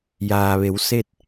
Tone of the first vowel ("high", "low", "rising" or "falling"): low